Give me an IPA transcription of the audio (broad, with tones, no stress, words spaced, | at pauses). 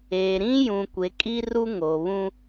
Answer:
eː˨ɾĩ˦jũ˨ kʷe˨˦kʼi˦ru˦ ŋo˨βũ˦